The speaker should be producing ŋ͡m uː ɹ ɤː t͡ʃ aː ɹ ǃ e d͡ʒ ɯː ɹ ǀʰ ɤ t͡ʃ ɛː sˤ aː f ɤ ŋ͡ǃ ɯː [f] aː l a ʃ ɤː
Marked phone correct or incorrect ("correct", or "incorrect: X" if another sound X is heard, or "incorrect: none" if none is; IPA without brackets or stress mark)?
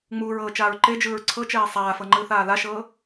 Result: incorrect: θ